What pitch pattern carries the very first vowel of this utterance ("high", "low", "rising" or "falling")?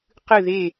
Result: falling